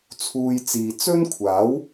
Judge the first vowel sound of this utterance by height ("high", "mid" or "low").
high